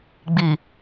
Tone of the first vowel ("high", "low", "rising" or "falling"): low